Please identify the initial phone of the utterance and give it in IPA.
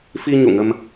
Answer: f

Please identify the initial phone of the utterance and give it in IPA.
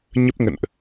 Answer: ɲ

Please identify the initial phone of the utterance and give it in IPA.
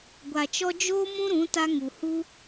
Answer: ɡʷ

